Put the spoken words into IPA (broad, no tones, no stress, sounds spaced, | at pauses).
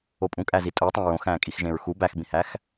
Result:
o pʼ ũ kʼ æ z i tʼ o tˤ æ̃ ɹ õ x æ̃ː kʼ i x ʒ ẽ ɹ x u b æ x b ĩ h æ x